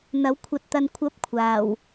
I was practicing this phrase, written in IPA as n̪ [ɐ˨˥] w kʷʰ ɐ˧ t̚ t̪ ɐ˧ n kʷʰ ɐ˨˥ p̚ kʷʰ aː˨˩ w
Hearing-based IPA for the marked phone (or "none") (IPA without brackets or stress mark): ɐ˨˥